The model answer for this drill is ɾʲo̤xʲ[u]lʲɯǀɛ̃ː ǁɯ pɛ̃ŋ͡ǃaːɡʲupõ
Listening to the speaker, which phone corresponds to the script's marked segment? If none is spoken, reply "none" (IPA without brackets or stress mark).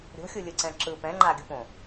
u